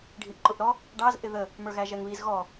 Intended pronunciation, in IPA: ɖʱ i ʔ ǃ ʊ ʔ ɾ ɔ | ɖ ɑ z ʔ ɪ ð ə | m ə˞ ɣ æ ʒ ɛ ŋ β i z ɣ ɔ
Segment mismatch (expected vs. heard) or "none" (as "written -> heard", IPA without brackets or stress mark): none